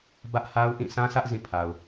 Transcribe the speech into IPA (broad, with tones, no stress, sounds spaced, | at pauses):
b ä˦ ʔ h a˦ ʊ̯ ʔ ĩ˦˨ sʰ ã˦ sʰ ä˦ ʔ z ĩ˦˨ pʰ a˨ ʊ̯